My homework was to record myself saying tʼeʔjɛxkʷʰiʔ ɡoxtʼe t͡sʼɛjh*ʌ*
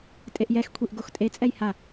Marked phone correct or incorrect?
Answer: incorrect